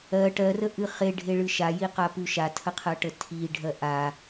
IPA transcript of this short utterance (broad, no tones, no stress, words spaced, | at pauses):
ɜ ʈɜrəʔɨ χeɖʱeɭɨ ʃajiqapʉ ʃatʰəqʰɜʈə tʰiɖʱɜ ʔa